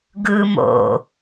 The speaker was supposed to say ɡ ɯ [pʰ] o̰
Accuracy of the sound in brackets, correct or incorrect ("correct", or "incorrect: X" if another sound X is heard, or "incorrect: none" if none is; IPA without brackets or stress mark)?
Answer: incorrect: m